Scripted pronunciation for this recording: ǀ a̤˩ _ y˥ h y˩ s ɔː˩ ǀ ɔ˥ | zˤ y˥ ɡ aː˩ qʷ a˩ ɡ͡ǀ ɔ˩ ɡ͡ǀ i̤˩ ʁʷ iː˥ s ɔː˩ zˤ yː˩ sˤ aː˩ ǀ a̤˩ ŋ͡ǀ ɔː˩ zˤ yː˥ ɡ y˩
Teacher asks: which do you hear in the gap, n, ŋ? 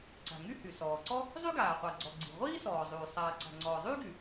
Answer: ŋ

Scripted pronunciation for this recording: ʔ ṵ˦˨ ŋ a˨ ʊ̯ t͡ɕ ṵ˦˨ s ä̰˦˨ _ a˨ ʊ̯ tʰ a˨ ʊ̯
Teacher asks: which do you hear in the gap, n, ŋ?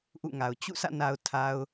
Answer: n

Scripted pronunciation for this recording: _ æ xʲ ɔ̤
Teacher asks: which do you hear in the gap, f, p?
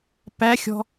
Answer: p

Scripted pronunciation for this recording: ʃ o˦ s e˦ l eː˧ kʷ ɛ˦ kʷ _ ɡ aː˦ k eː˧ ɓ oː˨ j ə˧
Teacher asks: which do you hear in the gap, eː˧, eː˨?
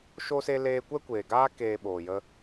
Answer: eː˨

